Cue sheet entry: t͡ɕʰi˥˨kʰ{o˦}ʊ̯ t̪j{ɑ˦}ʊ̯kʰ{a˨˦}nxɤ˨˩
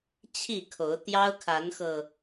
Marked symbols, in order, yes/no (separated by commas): no, yes, yes